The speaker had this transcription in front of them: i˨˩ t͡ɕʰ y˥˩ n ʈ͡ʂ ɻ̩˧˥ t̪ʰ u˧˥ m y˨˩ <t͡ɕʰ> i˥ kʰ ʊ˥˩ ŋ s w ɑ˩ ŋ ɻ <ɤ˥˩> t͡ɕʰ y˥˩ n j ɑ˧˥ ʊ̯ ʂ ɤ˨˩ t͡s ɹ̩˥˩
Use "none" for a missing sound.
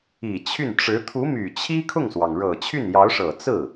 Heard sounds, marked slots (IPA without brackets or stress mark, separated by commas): t͡ɕʰ, ɤ˨˩